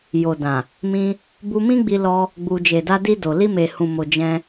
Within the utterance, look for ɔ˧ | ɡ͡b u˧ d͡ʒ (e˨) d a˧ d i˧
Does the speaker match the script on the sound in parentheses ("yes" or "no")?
yes